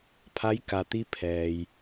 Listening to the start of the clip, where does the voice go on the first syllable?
rising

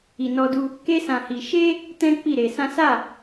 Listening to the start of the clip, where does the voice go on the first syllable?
low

